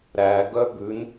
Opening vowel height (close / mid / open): open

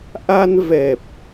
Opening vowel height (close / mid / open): open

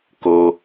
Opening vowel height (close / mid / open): mid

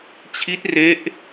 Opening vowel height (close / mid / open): close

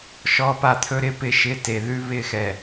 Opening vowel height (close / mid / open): mid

